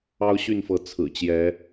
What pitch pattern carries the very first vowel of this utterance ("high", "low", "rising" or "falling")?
high